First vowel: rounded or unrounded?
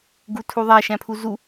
rounded